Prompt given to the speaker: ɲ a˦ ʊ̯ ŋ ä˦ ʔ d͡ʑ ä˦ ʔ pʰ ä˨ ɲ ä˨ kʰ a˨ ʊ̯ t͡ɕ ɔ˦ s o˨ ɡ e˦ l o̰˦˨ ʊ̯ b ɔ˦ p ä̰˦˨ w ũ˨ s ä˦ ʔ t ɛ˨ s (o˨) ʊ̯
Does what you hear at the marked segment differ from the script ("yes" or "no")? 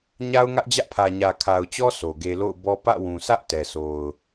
no